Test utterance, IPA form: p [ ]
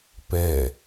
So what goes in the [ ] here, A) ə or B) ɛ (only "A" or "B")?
B